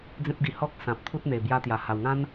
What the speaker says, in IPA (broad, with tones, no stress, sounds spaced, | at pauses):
d͡z ẽ˦ p̚ ɡ i˧ h ɔ˦ k̚ s ã˨ p̚ t̪ʰ u˦ t̚ n̪ e˨˩ b j a˧ t̪ j a˨˩ h a˨˩ w ŋ ã˦ n